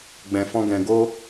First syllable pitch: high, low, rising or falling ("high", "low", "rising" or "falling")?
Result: low